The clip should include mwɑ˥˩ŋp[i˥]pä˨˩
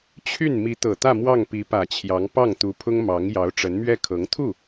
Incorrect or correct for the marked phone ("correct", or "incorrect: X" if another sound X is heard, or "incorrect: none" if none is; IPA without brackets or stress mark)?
incorrect: i˧˥